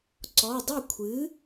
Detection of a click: present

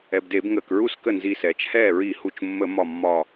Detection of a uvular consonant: absent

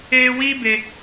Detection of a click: absent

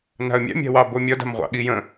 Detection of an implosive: present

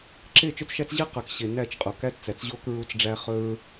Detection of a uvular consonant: present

